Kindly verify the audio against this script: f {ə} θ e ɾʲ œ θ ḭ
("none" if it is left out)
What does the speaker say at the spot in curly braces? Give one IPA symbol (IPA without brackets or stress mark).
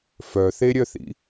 œ